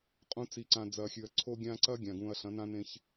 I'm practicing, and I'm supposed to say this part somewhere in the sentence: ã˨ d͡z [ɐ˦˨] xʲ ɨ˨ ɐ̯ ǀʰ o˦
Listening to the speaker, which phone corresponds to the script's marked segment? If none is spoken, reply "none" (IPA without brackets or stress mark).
ɐ˨